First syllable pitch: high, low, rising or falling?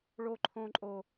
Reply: high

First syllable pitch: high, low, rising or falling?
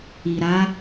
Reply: low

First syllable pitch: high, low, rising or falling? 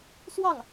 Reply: falling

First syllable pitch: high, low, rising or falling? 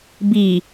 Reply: low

